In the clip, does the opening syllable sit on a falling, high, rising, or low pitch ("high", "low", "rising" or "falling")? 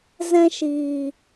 high